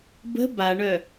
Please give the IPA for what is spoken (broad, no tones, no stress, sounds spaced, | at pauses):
b ə̤ b a ɳ œ